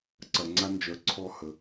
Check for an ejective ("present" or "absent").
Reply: absent